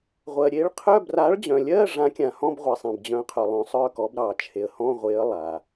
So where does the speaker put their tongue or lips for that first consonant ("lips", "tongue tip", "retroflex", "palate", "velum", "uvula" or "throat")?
uvula